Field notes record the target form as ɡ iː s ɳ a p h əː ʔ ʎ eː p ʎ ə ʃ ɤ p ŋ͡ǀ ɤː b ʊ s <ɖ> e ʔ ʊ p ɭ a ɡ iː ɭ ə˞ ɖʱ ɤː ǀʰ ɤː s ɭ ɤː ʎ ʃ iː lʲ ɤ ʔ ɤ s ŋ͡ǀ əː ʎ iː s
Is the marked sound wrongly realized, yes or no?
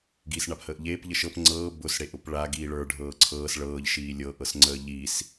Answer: yes